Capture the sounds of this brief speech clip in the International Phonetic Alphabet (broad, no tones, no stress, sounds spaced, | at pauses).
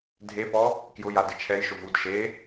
dʱ e p ɔ | k j ʊ j a d ɪ t͡ʃʰ ɛ j ʃ ʊ v u d ʃ e